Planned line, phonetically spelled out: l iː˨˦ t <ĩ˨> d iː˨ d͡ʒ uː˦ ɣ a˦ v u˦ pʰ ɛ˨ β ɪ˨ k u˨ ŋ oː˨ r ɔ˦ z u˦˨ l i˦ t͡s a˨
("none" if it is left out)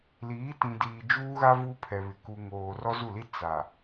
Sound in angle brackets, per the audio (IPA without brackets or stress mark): ĩ˨